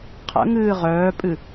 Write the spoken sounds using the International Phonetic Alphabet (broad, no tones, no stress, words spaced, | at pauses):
qʰə̰ŋɨː ʁœːpʼɨ